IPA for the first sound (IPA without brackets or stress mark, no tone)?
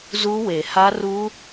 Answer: z